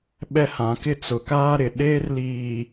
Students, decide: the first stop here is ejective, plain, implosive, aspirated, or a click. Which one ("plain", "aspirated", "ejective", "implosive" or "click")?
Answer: implosive